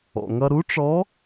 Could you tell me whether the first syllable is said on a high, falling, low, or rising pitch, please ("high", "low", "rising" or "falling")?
low